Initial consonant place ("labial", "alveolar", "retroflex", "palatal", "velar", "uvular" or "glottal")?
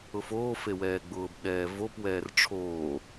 labial